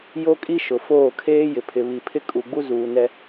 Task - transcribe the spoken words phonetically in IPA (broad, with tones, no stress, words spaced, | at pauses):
jo˦kʼi˦ ʃʊ˨ foː˦˨ kʰeː˦ jɪ˨pʰɪ˨βi˨ pʰɪ˦kʼu˨ɡ͡bu˦ zuː˨ nɛ˦